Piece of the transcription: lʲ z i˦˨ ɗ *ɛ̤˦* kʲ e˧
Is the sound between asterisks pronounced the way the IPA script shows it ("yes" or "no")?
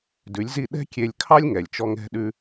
yes